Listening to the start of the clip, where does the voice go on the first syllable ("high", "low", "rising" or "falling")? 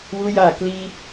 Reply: high